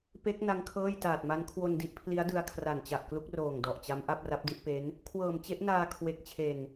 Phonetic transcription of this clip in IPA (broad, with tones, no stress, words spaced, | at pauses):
pe˦˥k̚ na˦˥ŋkʰɤː˥˩j taː˨˩t̚ma˦˥n kʰwo˧ndi˦˥ʔpʰli˦˥a̯dɯ˧a̯ kʰra˨˩nt͡ɕa˨˩ʔklu˦˥k̚roː˨˩ŋ dɔ˨˩ʔt͡ɕa˦˥m ʔa˥˩p̚ra˦˥p̚di˥˩ʔpe˦˥n | kʰwɤː˨˩mt͡ɕe˦˥ʔnaː˧ kʰwe˨˩k̚t͡ɕʰe˨˩n